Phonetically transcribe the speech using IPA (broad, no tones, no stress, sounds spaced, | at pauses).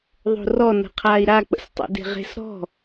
ðˤ o̤ r ɔ n ə̤ qʰ aː i̯ ɾ a k͡p ə̰ s tˤ ə̰ d e̤ ʁ e̤ s ɾ ɔ̤